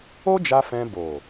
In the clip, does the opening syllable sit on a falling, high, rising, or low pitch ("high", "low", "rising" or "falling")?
high